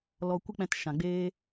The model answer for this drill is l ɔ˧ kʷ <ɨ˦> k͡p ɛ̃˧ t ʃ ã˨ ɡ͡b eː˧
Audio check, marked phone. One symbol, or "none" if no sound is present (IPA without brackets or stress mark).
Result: ɨ˦